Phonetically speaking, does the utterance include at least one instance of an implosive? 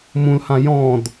no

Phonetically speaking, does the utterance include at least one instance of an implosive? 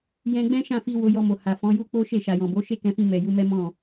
no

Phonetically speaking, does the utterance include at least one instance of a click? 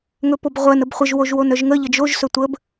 no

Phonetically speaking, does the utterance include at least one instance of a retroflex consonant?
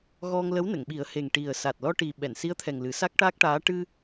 yes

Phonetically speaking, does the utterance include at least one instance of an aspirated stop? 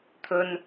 yes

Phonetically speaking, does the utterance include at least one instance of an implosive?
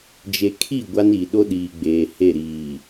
yes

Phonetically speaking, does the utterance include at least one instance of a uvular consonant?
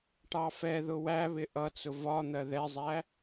no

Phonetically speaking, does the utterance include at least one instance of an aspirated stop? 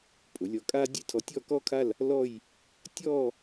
yes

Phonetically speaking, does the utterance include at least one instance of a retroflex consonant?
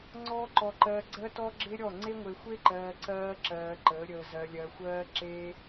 no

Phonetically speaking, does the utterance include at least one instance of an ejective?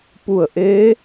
no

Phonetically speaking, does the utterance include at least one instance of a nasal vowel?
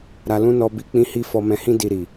yes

